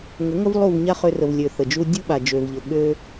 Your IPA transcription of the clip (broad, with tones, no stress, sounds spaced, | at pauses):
ŋ ə˨˦ ŋ ə˦ v lˠ u˦˨ v ɲ a˦ χ ø˧ r ə˨ v lʲ ø˨ θ ə˨ d͡ʒ u˦ dʲ u˦ ɓ a˨ d͡ʒ ø˨ v ʎ ə˨ ɠ ø˦